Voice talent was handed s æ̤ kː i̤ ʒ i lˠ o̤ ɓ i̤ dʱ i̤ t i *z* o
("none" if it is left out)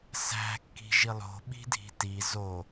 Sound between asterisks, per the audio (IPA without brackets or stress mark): z